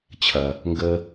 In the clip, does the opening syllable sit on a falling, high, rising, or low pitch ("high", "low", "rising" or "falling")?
low